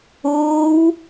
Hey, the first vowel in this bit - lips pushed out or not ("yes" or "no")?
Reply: yes